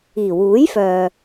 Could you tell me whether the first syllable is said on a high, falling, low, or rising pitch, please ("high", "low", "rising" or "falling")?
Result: low